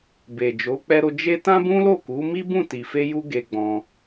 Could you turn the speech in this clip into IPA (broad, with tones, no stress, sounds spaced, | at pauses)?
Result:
b e˨ d͡ʒ o˨˦ k͡p ɛ˧ ɾ o˧ d͡ʒ e˦ t ã˦ b ũ˦ l o˦˨ k u˨˦ m i˦ b ũ˦˨ t i˨ f e˧ j u˧ ɡ e˧ ɡ͡b ɔ̃˧